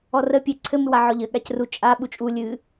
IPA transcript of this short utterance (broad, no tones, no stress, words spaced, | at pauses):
ɔrə pʲe ǀʰɘ mɨwaʕɔʎɘ ɠacru t͡ʃʼa ɓut͡ʃʼu lʲɨ